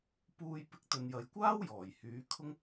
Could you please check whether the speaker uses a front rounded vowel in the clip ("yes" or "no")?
yes